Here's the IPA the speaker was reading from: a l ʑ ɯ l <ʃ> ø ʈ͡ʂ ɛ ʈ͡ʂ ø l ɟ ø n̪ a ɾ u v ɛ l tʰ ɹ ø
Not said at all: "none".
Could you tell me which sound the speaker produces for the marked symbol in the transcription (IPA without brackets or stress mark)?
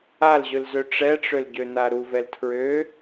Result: z